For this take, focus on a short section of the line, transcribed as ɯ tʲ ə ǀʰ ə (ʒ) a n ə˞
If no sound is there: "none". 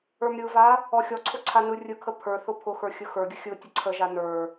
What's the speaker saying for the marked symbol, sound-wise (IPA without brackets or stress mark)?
ʒ